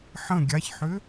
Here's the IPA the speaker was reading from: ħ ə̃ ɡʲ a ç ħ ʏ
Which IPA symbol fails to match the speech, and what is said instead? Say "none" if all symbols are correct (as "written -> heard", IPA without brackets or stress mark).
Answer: none